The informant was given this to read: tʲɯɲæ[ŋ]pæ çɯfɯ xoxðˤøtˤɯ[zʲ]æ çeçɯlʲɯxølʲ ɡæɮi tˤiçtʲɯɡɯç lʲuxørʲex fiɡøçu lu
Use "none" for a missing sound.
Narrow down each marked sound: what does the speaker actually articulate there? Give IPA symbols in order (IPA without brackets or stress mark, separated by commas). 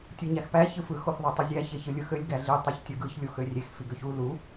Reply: x, zʲ